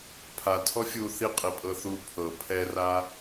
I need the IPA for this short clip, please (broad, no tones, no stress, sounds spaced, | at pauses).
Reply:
pʰ a tʰ ɔ fʲ u θ i qʼ i pʼ ɤ θ u pʰ ɤ pʰ ɛ r a